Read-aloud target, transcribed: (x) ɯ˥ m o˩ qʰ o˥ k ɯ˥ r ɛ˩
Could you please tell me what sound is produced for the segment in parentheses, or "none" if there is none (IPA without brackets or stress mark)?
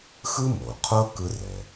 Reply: x